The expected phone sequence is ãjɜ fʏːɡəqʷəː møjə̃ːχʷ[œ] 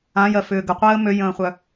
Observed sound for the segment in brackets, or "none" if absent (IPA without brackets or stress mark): œ